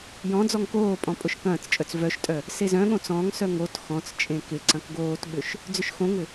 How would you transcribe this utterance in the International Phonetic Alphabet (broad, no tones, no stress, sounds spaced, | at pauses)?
j ɔ̃ d͡z ɔ ŋ k oː pʼ ɔ̃ pʼ ʊ ʃ k ɐ̃ː t͡s t͡ʃʼ œ t͡s v œ ʃ tʼ œ | s e z œ̃ ɠ õ t͡s ɔ̃ ŋ s œ ŋ o t x ɔ̃ t͡s t͡ʃʼ ẽ k ɪ ǀ ɐ̃ k ɡ oː t ɓ ʏ ʃ | d͡z ʏ ʃ x õ ŋ ʏ